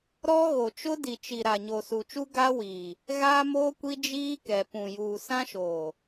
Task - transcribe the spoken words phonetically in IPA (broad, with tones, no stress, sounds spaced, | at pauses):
ɾ ɔ˦ ɣ o˨ t͡ʃ ʊ˦ d i˨ t͡ʃ i˨ ɾ a˨ ɲ o˨ s u˨ t͡ʃ u˦ ɡ a˦ w iː˨ | ɣ aː˦ m oː˦ kʷ i˦ d͡ʒ iː˦ k ɛ˨ p ũ˨ j uː˨ s ã˦ ʃ oː˨